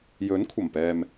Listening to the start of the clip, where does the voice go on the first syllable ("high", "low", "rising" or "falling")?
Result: rising